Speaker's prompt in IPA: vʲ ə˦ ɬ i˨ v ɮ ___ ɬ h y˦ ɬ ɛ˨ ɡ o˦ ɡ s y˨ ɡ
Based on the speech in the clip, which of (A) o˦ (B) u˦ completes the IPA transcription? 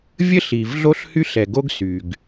A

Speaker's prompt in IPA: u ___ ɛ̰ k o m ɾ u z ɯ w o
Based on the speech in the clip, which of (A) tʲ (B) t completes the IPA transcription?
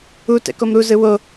B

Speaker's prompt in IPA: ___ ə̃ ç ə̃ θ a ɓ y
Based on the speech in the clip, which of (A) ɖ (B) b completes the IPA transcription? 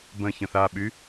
B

